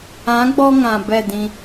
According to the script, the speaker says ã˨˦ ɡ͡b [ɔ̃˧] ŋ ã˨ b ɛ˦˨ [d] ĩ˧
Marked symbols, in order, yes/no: no, yes

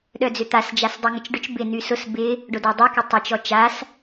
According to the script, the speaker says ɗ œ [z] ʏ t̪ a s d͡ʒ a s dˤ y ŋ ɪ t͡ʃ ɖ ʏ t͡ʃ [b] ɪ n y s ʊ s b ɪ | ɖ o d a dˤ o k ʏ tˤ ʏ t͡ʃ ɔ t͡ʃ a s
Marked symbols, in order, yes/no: no, yes

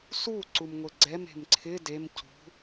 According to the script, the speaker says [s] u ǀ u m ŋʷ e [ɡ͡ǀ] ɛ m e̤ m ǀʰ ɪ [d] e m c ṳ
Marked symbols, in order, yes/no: yes, yes, yes

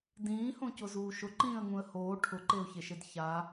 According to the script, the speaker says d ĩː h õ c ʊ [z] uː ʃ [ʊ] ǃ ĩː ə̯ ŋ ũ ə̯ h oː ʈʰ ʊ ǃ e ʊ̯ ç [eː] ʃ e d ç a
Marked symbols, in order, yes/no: yes, yes, no

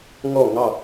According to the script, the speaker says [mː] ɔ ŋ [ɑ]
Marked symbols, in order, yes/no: no, yes

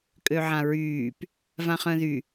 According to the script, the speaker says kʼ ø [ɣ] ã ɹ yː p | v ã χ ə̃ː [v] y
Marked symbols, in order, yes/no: no, no

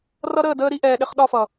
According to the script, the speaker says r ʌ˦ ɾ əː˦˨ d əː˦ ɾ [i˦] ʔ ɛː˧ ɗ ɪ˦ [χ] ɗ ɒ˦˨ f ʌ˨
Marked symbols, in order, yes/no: yes, yes

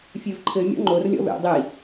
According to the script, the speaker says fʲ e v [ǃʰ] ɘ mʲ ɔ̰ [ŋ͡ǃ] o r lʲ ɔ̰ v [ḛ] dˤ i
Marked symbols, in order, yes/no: yes, yes, yes

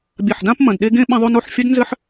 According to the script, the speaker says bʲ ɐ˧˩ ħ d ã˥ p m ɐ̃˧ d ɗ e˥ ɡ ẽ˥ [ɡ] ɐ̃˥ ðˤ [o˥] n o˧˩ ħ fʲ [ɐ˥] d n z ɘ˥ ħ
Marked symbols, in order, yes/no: no, yes, yes

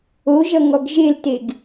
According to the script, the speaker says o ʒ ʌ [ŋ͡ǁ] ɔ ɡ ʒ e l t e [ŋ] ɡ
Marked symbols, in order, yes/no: no, no

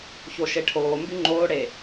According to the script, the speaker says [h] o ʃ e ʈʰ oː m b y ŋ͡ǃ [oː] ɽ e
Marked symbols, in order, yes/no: no, yes

